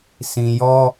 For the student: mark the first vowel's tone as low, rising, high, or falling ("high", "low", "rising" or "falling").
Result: low